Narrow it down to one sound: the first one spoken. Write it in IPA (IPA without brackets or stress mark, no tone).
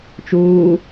t͡ʃ